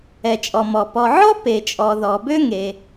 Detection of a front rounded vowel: present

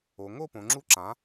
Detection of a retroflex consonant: absent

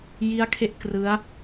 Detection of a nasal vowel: absent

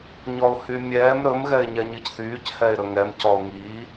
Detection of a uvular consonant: absent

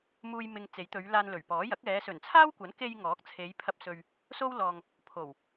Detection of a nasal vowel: absent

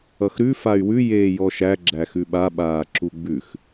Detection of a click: present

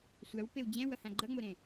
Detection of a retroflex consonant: absent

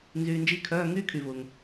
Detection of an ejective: absent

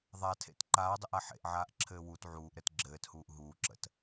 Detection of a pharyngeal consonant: present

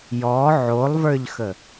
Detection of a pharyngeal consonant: present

